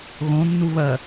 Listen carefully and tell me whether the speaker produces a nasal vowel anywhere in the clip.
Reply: yes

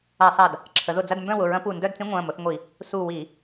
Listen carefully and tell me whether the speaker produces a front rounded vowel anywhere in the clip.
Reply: yes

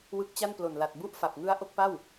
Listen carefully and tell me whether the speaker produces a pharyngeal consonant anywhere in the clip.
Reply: no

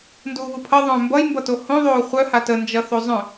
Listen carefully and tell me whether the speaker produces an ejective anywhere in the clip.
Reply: no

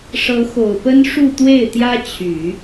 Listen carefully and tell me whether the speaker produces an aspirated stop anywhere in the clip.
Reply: yes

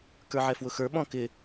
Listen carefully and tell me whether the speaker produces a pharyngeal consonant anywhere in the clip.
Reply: yes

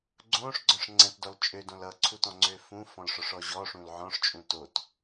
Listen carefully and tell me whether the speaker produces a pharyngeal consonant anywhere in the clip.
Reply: yes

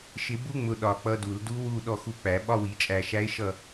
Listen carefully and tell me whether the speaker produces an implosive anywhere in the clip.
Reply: yes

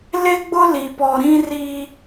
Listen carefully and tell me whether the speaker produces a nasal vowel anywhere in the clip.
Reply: yes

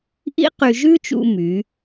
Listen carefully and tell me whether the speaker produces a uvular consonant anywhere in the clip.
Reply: yes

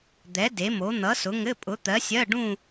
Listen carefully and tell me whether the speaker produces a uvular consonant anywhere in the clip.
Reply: no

